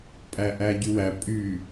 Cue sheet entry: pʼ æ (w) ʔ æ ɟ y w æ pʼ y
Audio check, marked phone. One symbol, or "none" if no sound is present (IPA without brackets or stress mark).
none